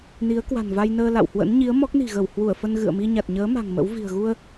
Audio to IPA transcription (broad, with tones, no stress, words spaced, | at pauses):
ni˨˦ə̯kwa̤˨˩nva˧jnəː˧ la̰˧˨whwə̰˧˥n ɲi˨˦ə̯ mɔ˦˥k̚ni̤˨˩ɣə˧˩w hwu˧˩ə̯fə˧n ɣɨ̰˧˨ə̯mi˧ɲa˨˩t̚ɲəː˨˦ ma̤˨˩ŋmə̰˧˥wvi̤˨˩ə̯ ɣu˧ə̯